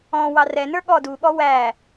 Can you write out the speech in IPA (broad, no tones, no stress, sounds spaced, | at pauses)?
ɔ̃ w ɑ r ɛ n ə˞ ɠ ɔ d u ɠ ɔ w æ